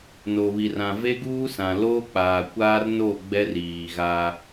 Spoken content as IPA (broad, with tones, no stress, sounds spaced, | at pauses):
n o˨ β i˨ r ã˨ v e˦ ɡ uː˦ s ã˨ l oː˦ k͡p aː˨ kʷ aː˦ r n o˦˨ ɡ͡b ɛ˦ r iː˨ ɣ aː˦